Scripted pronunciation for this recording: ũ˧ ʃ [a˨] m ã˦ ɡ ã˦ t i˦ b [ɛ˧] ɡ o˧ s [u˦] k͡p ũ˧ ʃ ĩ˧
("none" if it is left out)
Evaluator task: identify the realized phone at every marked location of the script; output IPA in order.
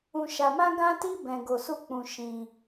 a˧, ɛ̃˧, u˦

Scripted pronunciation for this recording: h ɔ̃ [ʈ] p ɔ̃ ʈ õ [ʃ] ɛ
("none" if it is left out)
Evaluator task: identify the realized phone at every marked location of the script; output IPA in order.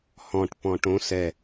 ʈ, s

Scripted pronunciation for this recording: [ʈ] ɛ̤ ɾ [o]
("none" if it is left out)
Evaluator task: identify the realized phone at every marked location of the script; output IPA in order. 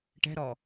ʈ, ɔ

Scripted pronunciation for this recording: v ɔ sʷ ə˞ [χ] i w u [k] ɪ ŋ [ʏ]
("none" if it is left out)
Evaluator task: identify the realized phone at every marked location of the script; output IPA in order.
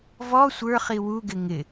χ, ɡ, ɪ

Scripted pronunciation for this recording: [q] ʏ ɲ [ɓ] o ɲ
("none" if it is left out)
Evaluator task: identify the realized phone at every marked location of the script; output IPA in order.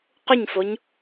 q, f

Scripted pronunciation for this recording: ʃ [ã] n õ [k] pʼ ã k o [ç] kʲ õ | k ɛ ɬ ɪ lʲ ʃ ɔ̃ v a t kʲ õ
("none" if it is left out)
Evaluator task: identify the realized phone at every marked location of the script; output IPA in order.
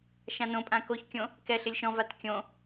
ã, none, ç

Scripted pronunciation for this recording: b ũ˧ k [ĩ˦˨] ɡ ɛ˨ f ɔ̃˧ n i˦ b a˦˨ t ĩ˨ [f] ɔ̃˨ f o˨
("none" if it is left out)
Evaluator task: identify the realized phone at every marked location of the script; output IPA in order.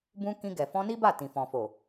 ĩ˧, f

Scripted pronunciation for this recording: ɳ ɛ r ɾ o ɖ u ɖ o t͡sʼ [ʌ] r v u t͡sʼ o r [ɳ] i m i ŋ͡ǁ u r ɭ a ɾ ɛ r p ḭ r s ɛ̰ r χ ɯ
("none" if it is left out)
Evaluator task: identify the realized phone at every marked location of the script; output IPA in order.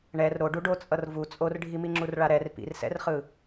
ʌ, ɖʱ

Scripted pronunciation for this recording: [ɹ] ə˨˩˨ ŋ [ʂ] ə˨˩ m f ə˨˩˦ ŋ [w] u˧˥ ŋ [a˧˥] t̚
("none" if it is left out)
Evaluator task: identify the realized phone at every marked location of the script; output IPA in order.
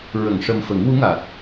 ɹ, ʂ, w, a˨˩

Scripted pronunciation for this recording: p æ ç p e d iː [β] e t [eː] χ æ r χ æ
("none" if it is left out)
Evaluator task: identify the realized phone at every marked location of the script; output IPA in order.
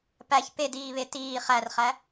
β, iː

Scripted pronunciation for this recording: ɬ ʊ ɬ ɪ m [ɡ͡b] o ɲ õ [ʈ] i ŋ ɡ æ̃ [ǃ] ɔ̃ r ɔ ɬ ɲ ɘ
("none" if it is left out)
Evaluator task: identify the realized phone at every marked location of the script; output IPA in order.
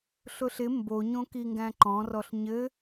b, k, ǃ

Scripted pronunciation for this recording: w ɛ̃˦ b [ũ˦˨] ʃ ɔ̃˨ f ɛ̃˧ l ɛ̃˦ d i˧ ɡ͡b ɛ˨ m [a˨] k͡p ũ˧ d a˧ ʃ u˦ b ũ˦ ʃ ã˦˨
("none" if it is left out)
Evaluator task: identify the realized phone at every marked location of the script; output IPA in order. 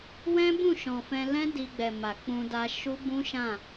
ũ˦˨, a˨

